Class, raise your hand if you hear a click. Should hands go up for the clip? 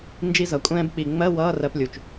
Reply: no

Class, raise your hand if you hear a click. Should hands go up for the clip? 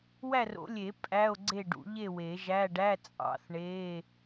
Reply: yes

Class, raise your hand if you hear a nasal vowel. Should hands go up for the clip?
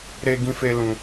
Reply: yes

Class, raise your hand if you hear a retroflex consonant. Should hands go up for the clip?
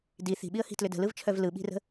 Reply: no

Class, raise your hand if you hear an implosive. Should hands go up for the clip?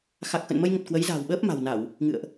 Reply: yes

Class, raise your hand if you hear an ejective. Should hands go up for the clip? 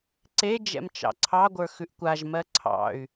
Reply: no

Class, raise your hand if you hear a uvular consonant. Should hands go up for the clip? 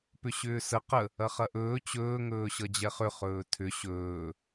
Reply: yes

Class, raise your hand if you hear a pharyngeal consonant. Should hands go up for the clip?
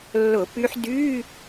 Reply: yes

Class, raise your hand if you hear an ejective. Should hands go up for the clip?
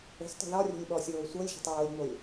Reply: no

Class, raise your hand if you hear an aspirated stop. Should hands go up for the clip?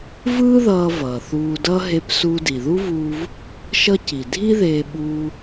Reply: no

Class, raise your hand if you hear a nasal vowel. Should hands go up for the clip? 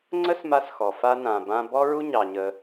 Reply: yes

